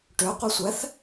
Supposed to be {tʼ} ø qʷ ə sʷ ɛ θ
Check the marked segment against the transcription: incorrect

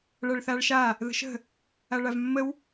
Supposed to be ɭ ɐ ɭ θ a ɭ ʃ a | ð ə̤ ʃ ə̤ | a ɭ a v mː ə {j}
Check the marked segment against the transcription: incorrect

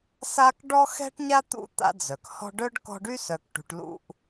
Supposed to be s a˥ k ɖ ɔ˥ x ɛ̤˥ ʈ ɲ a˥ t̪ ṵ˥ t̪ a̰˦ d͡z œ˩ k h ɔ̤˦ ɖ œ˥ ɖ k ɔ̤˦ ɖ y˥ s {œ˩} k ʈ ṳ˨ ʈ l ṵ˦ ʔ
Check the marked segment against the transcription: incorrect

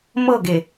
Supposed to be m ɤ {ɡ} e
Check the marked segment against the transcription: correct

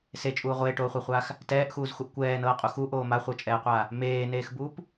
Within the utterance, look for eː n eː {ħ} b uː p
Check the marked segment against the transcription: incorrect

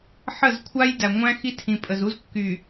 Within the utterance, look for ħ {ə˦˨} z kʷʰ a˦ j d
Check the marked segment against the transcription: correct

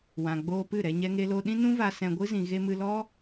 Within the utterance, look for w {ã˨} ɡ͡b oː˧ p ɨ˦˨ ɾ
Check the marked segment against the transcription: correct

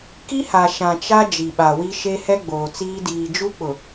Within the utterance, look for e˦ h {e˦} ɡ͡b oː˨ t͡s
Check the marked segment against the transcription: incorrect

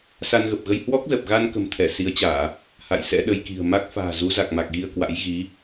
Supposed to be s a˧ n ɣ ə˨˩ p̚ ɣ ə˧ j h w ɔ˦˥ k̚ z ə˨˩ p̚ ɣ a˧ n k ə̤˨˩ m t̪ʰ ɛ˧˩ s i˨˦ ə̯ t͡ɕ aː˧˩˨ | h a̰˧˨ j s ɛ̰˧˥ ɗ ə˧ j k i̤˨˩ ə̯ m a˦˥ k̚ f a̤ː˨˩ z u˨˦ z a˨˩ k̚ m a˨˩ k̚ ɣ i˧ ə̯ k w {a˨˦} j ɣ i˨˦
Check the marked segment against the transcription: incorrect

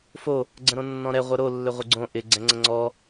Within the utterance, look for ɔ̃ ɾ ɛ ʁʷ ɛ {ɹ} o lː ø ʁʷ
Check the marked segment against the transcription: incorrect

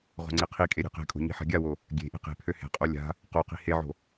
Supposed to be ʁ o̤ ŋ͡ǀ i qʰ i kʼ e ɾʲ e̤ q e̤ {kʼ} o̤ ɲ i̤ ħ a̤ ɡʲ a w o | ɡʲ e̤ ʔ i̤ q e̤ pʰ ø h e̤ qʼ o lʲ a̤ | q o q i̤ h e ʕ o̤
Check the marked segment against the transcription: correct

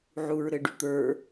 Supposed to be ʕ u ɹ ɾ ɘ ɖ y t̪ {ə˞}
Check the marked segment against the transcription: correct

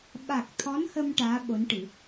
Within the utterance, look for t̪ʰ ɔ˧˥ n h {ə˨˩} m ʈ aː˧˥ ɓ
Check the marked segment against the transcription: incorrect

